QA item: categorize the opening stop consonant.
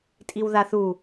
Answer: ejective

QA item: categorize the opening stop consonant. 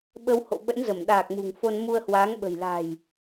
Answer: implosive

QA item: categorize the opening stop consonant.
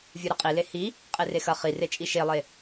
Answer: ejective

